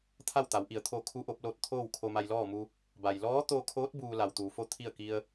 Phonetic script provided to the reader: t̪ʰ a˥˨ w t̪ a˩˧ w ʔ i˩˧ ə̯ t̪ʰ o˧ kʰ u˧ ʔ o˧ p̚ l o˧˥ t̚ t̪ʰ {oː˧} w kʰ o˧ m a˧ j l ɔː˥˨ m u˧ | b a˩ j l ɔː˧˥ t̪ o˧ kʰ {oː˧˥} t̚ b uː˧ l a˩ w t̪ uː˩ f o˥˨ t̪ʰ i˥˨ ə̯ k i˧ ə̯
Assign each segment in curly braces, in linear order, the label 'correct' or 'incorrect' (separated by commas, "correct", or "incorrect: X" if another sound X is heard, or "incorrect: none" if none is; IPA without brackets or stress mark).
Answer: incorrect: oː˥˨, correct